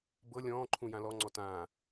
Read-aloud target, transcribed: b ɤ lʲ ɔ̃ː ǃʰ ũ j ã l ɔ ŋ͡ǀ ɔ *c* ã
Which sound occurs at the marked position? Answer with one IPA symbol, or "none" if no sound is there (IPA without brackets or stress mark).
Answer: t